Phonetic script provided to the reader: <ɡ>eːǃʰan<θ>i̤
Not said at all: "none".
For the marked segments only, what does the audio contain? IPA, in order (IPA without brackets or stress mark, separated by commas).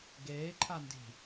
ɡ, d